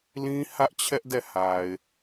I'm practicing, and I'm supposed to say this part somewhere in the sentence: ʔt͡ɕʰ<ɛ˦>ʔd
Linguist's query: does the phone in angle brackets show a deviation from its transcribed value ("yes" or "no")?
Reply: no